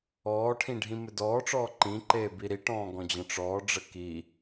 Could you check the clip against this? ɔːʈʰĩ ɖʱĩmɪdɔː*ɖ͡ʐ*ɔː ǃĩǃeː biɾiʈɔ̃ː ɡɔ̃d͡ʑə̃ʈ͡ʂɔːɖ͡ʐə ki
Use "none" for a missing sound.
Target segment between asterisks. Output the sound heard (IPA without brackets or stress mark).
ʈ͡ʂ